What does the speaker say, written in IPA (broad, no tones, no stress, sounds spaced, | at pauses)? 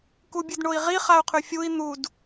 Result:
k u bʲ ɨ d ɳ o i̯ ʁ i χ a u̯ qʰ ʉ fʲ u i̯ n̪ u d